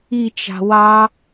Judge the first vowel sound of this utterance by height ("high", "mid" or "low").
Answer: high